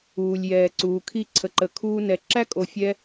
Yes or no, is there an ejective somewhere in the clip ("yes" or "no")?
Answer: yes